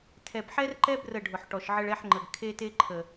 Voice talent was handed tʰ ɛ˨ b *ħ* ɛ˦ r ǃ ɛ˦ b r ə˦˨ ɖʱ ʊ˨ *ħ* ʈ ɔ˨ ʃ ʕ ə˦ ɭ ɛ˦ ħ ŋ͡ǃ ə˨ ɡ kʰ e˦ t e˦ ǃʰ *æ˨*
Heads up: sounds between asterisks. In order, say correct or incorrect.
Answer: correct, correct, incorrect

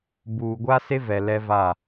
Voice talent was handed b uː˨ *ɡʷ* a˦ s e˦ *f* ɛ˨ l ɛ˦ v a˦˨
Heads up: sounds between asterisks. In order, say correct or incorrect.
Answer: correct, incorrect

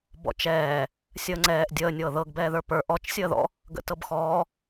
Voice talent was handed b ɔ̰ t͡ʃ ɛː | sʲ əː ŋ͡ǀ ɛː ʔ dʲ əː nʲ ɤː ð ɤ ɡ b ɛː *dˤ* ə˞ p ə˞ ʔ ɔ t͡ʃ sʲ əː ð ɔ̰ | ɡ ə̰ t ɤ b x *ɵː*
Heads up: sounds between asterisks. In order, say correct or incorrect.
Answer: incorrect, incorrect

